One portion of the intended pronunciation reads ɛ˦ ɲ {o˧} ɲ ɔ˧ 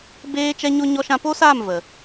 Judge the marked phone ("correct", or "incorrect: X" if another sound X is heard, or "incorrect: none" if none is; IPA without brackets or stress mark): incorrect: o˦